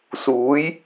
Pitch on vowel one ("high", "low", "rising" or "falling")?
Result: rising